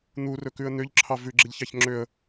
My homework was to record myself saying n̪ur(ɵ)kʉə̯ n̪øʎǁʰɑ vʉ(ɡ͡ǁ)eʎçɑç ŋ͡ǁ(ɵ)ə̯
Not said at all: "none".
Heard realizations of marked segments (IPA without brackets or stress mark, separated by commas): ɵ, ɡ͡ǁ, ø